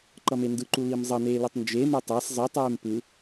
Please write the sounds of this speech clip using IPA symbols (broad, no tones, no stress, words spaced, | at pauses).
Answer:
ǃʌmendɯǃu limzˤʌneː lɛtˤnd͡ʒeme tˤas zˤɯtˤeːm pɯ